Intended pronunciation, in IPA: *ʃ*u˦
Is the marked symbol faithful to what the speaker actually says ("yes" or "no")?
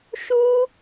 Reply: yes